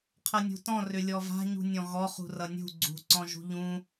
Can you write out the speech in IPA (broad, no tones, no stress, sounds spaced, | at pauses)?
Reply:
qʰ ʌ nʲ ṳ t ɔ̃ r ʏ lʲ ɔ v a̤ ɲ ṳ nʲ ɔ̃ ɣ ɔ χ ṳ r ʌ nʲ ṳ ɡ͡ǀ ṳ ǀ ɔ̃ ʒ ṳ ʎ ũ